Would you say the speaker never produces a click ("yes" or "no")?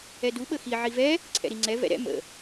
no